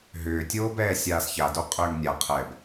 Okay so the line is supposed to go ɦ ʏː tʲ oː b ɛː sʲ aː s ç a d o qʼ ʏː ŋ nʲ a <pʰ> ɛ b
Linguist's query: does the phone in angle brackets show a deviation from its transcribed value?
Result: yes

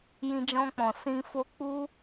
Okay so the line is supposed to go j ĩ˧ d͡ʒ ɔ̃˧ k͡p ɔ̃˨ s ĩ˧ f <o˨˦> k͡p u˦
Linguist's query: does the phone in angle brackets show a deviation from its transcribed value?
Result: yes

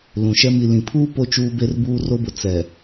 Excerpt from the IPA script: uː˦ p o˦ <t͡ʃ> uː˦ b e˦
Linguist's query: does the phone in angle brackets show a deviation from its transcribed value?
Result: no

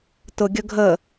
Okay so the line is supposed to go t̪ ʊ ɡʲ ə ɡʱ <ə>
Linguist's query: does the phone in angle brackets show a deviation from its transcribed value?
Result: no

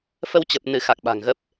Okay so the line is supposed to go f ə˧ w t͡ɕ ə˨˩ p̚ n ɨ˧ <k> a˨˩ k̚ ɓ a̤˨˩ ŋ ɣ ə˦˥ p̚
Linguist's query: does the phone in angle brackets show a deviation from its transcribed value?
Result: yes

